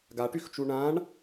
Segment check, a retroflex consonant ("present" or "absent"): present